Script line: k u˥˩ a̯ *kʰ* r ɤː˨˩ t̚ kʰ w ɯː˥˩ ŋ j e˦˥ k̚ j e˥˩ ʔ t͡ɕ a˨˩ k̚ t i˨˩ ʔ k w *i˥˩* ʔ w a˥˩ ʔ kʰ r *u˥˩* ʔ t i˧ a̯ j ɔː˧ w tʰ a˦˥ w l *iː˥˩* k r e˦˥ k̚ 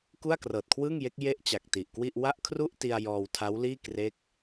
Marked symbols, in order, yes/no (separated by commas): no, yes, yes, yes